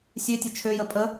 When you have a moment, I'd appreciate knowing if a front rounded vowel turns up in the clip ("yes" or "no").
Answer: yes